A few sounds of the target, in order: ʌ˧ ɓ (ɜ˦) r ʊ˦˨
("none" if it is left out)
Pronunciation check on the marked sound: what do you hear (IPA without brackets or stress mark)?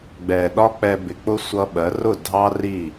ɜ˨˦